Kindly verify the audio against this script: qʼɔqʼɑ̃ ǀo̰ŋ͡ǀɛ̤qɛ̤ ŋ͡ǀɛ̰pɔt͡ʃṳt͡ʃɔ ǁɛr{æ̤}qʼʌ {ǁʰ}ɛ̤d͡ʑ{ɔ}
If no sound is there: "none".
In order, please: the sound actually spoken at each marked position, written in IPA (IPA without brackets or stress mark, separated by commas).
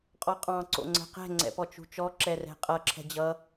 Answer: ɛ̤, ǁʰ, ʌ